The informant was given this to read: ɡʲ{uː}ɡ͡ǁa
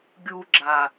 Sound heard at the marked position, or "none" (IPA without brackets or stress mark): uː